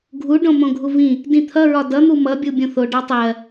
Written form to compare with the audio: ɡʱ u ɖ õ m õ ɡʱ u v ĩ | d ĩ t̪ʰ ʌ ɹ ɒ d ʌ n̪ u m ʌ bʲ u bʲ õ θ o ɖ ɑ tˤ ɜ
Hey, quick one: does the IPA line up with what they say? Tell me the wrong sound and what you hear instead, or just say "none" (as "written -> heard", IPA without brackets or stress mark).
none